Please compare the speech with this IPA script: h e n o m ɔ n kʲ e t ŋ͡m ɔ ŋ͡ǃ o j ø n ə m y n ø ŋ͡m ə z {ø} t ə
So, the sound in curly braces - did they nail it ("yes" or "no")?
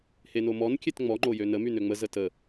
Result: no